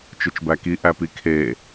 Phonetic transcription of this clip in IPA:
t͡ʃɯt͡ʃbæki ʔæpikʰe

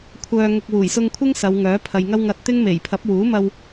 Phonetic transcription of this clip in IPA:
kʷʰœː˧ ŋʊ˧k̚ wuː˨˩jsʊ˧ŋkʷʰɪ˥ŋ sɐ˨˧wŋœː˨˥ pʰɐ˨jŋɐ˥wŋɐ˧t̚ t̪ɪ˥ŋme˨˩j pʰɐ˨˥p̚wuː˨˥mɐ˧w

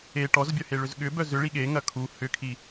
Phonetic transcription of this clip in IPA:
e ʈɔzbʲœheɭʏz ɠʏbœ zʏɭi ɠeŋɐ kʰu hʏkʰi

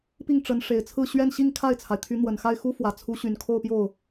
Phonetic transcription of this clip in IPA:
pi˥˩ŋʈ͡ʂə˧˥nʂe˨˩ɪ̯t͡sʰɹ̩˥˧ ɕɥɛ˥˧nɕi˥˧ŋkʰa˥˩ɪ̯t͡sʰa˩ɪ̯ t̪ʰy˧˥n̪wə˨˩nxa˥˩ɪ̯ xu˥fwä˨˩ t͡sʰu˧˥ɕy˨˩nkʰo˥˧ʊ̯pjo˥˩ʊ̯

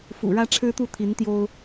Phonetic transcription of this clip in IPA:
fṵ˨˩ɻä˦ʈ͡ʂʰɻ̩˦t̪u˥˨ t̪ʰi˨˦nt̪jo˦ʊ̯

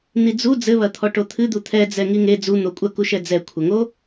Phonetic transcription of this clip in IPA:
n̪id͡zu d͡zɘβɐt̪ʰɔ ʈot̪ʰɨd̪u t̪ʰɛd͡zɛ ŋiŋe d͡zu n̪okʷʼɐkuʃɛ d͡zɛkʷʰɐŋo

